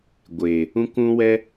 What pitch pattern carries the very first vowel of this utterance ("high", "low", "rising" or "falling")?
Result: low